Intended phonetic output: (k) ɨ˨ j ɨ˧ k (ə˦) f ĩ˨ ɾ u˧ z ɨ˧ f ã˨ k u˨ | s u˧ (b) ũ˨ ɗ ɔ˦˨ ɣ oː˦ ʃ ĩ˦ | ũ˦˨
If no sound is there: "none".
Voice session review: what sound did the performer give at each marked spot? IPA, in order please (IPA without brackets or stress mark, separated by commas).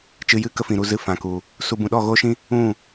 t͡ʃ, ə˦, b